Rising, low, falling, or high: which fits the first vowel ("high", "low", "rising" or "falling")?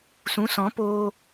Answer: rising